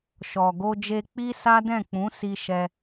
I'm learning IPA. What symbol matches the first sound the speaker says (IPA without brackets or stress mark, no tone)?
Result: ʃ